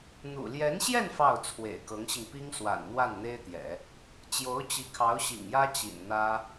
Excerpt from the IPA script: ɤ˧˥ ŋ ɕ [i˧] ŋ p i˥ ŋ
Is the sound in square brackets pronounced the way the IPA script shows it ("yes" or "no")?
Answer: yes